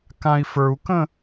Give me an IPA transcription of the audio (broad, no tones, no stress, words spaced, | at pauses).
kãi̯fə˞u̯kə̃